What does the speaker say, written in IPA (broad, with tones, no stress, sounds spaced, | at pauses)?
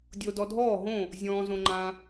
dʲ o˧ d ɔ˧ dʱ ɔː˥˨ ɦ õ˥˨ | zʲ ɔ̃ː˧ z õ˧ ŋ͡ǃ ã˧